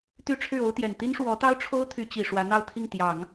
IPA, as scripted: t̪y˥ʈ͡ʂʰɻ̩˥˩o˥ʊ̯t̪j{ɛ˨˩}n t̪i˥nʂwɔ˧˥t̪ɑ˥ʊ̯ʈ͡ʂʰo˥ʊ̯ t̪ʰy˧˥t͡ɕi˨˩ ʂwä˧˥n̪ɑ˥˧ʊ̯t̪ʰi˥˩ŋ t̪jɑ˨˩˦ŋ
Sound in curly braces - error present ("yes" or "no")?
no